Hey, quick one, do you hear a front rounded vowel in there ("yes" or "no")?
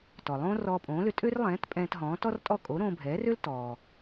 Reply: yes